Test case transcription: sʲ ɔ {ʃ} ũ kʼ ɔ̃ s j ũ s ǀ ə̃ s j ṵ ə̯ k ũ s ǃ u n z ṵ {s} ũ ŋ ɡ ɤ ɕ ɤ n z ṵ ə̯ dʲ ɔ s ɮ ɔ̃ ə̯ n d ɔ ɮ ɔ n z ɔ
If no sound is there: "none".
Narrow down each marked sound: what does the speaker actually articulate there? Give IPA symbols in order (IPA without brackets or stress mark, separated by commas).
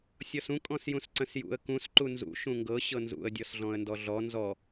s, ʃ